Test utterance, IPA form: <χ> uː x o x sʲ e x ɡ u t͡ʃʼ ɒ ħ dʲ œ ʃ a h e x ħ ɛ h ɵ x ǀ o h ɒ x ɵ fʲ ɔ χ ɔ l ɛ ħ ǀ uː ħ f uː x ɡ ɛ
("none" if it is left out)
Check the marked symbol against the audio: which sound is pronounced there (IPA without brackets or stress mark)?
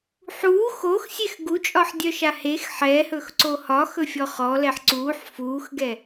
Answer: ħ